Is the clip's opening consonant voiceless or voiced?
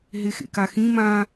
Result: voiced